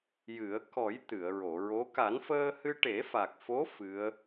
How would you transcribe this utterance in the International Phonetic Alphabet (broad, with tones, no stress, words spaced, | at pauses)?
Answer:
jɨ˨˩˦ə̯ kɔ˨˩˦j t̪ɨ˨˩˨ə̯ɹo˨˩˨ɹo˧˥ ka˨˩˦nfəː˧hɨ˧ ʈe˨˩˦fa˨˩k̚fo˧˥ fɨ˧˥ə̯